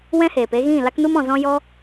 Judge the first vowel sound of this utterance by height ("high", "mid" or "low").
mid